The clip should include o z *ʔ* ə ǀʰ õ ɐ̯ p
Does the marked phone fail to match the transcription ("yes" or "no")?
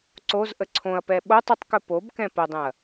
no